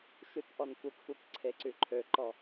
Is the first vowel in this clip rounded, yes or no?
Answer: yes